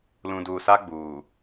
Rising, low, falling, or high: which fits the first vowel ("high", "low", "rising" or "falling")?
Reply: low